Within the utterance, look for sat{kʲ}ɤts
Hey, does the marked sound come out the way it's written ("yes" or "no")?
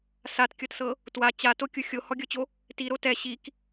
yes